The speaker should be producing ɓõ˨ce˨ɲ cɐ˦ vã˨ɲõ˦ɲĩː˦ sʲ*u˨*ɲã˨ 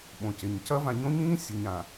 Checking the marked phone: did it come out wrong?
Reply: no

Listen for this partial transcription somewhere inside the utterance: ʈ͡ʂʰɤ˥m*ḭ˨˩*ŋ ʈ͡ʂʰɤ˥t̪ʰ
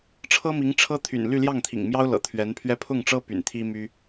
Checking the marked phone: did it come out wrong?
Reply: yes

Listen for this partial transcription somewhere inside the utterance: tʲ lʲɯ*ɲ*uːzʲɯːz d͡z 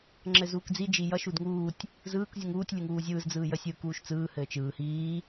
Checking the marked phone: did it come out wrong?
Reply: yes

